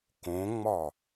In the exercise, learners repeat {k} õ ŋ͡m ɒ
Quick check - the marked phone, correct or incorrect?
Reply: correct